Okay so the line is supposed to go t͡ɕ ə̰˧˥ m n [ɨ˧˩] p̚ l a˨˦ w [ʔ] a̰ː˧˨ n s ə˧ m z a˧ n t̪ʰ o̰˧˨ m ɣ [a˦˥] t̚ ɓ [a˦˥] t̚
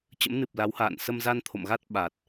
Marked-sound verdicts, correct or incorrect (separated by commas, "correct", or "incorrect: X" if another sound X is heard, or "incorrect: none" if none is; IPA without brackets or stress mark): incorrect: ɨ˨˩, incorrect: h, correct, incorrect: a˨˩